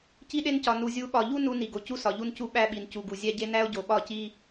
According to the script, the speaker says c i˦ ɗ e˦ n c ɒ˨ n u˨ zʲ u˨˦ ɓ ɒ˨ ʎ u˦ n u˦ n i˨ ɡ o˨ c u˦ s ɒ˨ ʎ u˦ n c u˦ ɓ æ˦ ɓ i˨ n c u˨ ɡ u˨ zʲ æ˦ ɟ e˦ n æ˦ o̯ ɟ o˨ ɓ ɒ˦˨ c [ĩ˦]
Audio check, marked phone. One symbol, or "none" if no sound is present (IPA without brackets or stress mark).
i˦